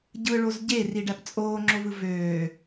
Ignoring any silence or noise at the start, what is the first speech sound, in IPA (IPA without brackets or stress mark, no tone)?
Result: ɟ